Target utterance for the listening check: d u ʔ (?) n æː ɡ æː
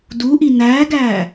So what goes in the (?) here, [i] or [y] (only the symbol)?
i